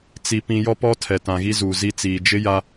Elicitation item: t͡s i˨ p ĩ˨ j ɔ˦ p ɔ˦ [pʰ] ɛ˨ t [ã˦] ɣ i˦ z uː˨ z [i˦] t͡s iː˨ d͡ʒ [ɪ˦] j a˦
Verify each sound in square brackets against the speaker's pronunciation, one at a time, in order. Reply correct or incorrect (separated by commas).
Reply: incorrect, incorrect, correct, correct